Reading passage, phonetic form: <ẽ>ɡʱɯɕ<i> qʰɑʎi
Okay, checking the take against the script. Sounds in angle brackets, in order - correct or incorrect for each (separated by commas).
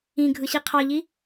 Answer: incorrect, correct